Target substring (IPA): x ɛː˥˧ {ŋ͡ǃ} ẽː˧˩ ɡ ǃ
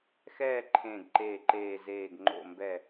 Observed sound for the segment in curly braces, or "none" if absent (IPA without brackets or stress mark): ǃʰ